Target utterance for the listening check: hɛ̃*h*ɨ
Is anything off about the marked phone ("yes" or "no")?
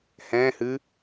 no